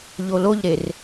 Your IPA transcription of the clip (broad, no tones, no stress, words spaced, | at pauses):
ʎoloʎɾer